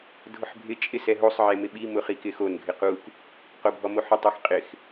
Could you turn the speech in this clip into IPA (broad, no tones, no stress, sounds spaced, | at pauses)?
dʱ ʊ ħ bʱ ɪ t͡ʃʼ ɪ s ɛ ɦ o sˤ ʕ e m ɪ ɓ i m ʊ χ i k ɪ x o n ɡʱ ɪ q u k | q o bʱ ɔ m o ħ ʊ tˤ e x qʼ ɪ x